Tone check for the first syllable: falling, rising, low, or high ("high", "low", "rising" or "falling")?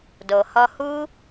low